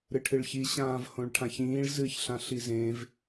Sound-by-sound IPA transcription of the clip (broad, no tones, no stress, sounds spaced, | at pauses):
ɾ ɨ ʈʰ ɨ ɭ ç i ɕ ãː v h õ ɭ ʈʰ ã ç ĩː ɭ z ɨ ç ɬ ã ɬ i z ẽ v